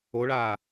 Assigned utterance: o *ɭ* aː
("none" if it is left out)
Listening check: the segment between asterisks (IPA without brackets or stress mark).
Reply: ɭ